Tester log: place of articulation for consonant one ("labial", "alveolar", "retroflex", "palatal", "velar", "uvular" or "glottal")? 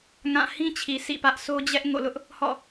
velar